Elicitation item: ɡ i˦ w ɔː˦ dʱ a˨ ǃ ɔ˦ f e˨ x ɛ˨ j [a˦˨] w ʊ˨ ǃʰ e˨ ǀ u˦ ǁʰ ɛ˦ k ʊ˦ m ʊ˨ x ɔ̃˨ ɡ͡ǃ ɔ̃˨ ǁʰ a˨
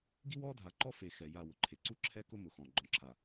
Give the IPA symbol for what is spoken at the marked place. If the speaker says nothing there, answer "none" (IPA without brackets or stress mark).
a˦˨